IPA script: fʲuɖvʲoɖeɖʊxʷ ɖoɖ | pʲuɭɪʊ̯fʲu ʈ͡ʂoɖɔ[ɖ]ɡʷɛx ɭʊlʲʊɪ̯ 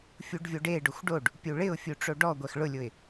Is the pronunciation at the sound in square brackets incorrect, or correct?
incorrect